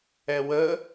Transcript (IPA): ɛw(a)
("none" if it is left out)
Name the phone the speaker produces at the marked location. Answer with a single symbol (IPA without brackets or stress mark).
ə